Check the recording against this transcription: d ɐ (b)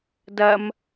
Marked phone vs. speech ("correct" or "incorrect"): incorrect